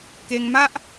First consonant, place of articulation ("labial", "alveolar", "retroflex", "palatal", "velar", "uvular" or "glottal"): velar